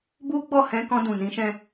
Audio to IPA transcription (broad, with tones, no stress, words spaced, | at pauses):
bu˦ɡ͡bɔ˦˨hɛ̃˧ kɔ̃˧dũ˨nĩ˨˦ʃɛ̃˧